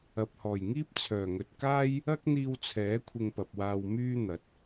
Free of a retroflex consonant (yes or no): yes